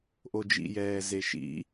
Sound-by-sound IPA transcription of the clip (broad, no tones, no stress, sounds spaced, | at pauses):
ʔ o d͡ʒ ḭ j ɛː z e ʃ ḭ